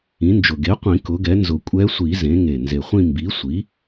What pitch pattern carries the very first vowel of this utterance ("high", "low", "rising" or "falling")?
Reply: rising